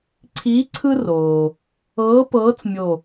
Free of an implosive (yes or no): yes